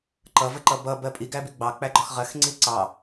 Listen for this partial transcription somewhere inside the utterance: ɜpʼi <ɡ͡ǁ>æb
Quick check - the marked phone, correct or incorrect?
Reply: incorrect